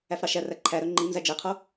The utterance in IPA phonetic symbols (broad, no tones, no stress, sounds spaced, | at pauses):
æ f ɾ ɑ ʃ æ r æ ǃʰ æ ɾ œ ŋ͡ǃ i n z æ d͡ʒ e qʰ o